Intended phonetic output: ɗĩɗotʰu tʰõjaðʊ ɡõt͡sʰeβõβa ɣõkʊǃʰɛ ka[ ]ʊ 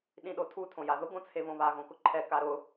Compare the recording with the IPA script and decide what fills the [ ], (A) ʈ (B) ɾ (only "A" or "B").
B